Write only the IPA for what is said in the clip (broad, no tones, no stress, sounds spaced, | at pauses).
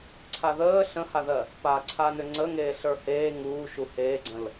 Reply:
ǀʰ a ð əː ɬ ə̃ h a ð ɜ | p aː ǀʰ a n ʏ ŋ͡ǀ ə ŋ eː ɬ ə˞ h eː ŋ uː ʃ u h eː ɡ͡ǀ ə̃ l